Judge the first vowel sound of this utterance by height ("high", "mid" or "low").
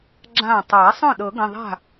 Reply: low